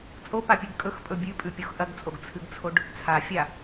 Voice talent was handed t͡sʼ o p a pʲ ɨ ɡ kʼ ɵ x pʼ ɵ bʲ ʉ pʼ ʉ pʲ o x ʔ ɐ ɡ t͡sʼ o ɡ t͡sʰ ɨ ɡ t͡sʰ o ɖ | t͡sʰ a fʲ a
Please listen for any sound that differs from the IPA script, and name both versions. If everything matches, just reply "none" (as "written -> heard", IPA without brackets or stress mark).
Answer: none